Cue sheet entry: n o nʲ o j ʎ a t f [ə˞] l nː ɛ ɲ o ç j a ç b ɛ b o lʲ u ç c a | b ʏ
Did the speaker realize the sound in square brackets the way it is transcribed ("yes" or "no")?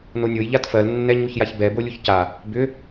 no